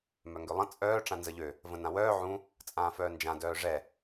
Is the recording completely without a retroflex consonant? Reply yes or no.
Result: no